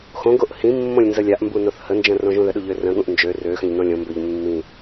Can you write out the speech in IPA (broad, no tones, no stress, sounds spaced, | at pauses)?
x õ ɡ o ʔ h ĩ mː õ lʲ n z ə lʲ a ʔ m b u n o θ h ə n d͡ʒ ə̃ r õ ʒ ũ ð ə ɗ u ʎ ø r ə̃ ɠ ũ ʔ n d͡ʒ ø r ø x ə̃ ʎ n õ lʲ õ m b ø ʎ mː ĩ